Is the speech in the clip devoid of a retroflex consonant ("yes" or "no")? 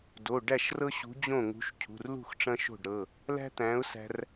no